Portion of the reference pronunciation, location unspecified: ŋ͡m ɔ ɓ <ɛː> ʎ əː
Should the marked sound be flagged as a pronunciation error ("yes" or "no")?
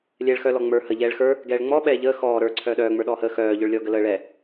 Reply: no